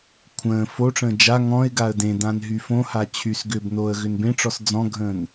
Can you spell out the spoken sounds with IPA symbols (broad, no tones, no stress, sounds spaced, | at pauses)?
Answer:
kʷʰ ə̃ː f o ʈ͡ʂ ə̃ː d͡ʒ a ŋ ɔ̃ ɪ̯ ɡ a ə̯ d ẽ d ã n ɦ y f õ h a t͡ɕʰ y s ɡ ʏː b n oː ə̯ ɣ ʏ n b ẽ ʈ͡ʂ ɔ s d͡z ɔ̃ ɡʱ ə̃ː n